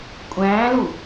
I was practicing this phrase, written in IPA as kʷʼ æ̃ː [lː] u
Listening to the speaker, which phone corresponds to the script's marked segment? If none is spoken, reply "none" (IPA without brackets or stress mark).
l